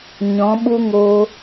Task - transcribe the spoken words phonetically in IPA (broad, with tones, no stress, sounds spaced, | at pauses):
ɲ ɔ̃˨˦ ɓ u˦ ŋ oː˧